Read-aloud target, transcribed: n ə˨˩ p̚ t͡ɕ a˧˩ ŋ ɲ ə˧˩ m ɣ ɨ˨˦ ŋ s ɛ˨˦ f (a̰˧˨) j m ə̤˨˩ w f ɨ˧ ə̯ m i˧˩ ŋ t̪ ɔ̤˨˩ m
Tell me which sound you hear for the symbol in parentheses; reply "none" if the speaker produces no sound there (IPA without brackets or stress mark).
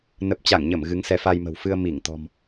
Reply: a˧